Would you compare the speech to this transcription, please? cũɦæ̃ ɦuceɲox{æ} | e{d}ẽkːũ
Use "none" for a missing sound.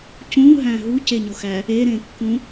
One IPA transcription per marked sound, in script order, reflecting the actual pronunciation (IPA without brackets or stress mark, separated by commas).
æ, ɾ